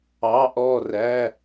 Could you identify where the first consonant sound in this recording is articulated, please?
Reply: glottal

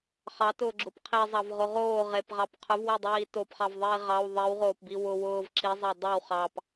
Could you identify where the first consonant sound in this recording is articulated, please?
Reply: uvular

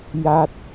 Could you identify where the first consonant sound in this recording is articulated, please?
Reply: palatal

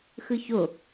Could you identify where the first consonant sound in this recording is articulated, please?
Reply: velar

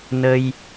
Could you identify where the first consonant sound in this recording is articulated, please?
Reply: alveolar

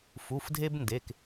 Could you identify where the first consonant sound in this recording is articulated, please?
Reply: labial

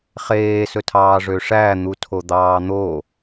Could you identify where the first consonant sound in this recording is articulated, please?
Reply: uvular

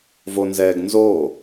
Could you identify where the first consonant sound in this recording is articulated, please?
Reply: labial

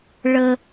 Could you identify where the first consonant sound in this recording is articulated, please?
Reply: retroflex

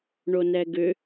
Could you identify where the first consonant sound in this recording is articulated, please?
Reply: retroflex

